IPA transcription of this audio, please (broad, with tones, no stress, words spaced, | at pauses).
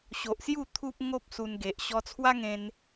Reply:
ɕo˨ʔsju˥˧ t̪ʰu˦p̚ŋo˦p̚ su˧nɡe˨ʔ ɕɔ˧t͡sʰwa˦ŋẽ˧n